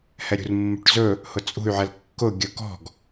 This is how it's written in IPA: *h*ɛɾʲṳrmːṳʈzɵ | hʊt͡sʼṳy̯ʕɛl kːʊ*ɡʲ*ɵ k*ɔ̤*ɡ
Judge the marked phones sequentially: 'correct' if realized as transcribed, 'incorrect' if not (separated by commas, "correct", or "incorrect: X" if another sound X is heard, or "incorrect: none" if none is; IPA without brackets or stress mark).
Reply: correct, correct, correct